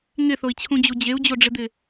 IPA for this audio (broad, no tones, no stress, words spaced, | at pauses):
ŋɪθoi̯t͡ɕʰũd͡ʑu d͡ʑeu̯d͡ʑoɖ͡ʐɪd̪ɪ